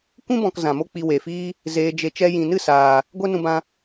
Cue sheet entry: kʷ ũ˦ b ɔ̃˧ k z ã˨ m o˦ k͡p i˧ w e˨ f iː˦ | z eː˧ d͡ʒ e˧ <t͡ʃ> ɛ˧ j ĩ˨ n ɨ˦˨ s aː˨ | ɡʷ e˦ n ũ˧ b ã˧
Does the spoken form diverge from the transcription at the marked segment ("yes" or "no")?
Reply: no